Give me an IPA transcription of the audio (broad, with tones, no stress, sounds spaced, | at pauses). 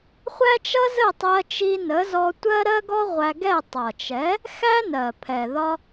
χʷ æ˥ t͡ʃ ʌ˥ z ə˥˩ tˤ ɜ˧ t͡ʃ i˧ n ə˩˥ z ɔ˧ tʷ ɜ˥ ɾ ɜ˥ ɡ ɔ˥ ʁʷ æ˧ ɡ ɛ˥˩ tˤ ʌ˩ t͡ʃ ɛ˩˥ | x æ˥ n ɜ˩ pʰ ɛ˩ ð ɒ˧